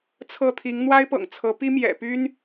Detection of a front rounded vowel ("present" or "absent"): present